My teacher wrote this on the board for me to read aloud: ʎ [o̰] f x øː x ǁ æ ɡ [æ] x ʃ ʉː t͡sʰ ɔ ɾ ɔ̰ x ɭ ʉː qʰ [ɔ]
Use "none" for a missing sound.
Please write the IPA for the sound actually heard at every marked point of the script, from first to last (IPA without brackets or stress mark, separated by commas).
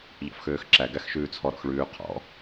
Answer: ɔ̰, æ, ɔ̰